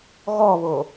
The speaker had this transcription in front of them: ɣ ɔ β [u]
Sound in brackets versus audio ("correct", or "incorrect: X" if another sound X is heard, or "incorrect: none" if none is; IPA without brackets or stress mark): incorrect: o